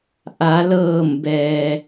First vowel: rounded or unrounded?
unrounded